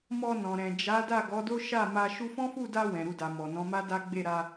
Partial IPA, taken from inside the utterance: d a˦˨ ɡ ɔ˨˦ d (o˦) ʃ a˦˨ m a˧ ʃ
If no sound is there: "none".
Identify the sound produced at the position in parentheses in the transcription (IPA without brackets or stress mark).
o˦